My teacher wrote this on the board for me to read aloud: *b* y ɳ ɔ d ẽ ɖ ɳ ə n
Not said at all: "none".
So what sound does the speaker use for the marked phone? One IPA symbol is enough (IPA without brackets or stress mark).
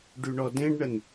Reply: ɖ